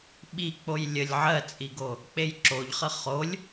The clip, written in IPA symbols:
ɓik͡poj lʲəlʲ ʕɜt͡sʼiɡo | k͡pejǁoʎχə χolʲ

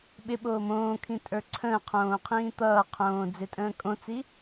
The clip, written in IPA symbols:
ɓɪ ɓoːmõːkʰĩ tʼə˞ǀʰə̃ːqʰõː qʰĩːt̪ʌːqʰõː d͡zɪtʼə̃ːkʼõt͡si

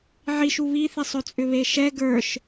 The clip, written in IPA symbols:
ʕiʃ uβiθisˤ ɵt͡sʼʏβeʃɛ ɡə˞ʃ

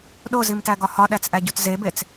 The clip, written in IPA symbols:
ɗozimtæɡɒ hɒɗæt͡sʔæɟut zebet͡s

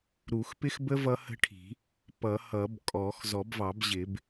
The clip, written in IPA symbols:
ɾu˨˩˦xpɪ˦˥xbə˦˥ vʌ˦˥hə̤˦˥ʈʰi̤˨˩˦ | pʌ˨˩˦hʌ˨˩˦b kʼɔ˨˩˦x zɔ˨˩˦bvɑ˨˩˦bʑɪ˨˩˦b

